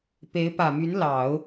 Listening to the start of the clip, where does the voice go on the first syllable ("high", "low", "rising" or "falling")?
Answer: rising